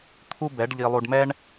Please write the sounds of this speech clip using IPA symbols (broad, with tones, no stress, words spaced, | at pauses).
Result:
t̪ʰu˦ bɛ˨˦ɖʎi˧lˠu˧ɖmɛ˦ɳ